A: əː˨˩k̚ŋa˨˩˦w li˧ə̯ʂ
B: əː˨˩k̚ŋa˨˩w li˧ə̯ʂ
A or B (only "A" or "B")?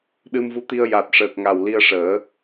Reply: B